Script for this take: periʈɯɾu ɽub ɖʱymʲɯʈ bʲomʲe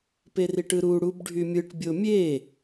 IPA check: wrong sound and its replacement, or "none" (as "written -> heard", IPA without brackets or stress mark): none